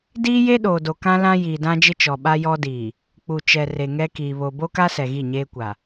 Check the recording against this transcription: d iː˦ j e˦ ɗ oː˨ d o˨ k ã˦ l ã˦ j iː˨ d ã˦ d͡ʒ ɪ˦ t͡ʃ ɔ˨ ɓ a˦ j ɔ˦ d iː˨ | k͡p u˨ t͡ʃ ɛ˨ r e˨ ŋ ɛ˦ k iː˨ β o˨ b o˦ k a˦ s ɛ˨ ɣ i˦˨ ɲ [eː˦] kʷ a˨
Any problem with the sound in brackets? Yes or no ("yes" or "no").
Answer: no